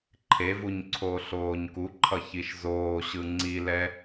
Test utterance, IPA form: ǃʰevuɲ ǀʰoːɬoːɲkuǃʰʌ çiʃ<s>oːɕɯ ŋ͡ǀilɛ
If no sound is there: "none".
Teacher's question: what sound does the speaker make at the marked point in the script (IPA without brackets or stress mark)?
z